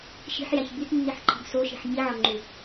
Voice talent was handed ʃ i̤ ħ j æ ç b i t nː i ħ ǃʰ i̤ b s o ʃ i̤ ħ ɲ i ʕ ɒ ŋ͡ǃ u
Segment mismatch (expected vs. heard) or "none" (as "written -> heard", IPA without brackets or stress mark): none